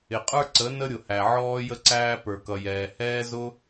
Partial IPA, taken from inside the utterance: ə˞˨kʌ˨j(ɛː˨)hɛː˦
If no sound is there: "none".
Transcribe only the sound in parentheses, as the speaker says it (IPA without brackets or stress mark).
ɛː˨